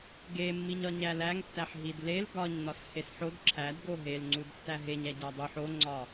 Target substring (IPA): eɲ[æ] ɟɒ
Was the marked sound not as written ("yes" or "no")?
no